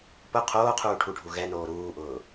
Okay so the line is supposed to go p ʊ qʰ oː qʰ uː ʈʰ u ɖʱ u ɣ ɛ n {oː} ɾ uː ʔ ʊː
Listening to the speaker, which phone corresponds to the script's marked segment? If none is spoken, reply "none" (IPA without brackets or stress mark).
oː